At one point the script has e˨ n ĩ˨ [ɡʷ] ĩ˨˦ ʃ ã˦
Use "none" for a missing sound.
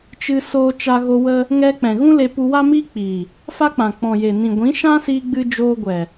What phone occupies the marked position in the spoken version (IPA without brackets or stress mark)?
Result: ɡʷ